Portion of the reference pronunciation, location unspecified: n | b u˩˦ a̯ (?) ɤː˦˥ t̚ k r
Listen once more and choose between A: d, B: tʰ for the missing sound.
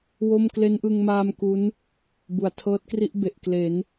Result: B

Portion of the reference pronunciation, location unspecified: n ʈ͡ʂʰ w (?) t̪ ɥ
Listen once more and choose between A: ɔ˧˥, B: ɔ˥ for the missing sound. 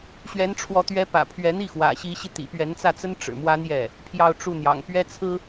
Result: A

